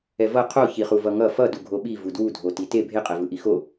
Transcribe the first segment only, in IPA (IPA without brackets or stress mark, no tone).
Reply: ɛ